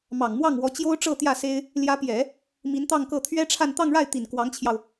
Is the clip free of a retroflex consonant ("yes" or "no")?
no